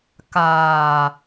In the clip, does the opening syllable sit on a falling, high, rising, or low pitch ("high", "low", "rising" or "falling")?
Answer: low